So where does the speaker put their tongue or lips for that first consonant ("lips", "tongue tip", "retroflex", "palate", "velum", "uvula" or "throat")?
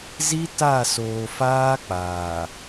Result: tongue tip